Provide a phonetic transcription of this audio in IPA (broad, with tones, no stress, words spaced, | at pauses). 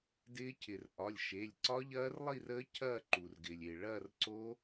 dɪː˦˥cʰɪ˩rʔɒ˩˧˩lʲʃe˩˧˩lʲ ǀɒ˦˥ʎɐː˦˥rlˠi˥˧rəː˦˥ cʰɐː˥˧ǃu˩rɡɪː˩lʲ e˩ɭɐː˥˧rǀo˦˥